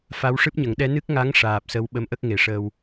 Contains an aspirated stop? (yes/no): no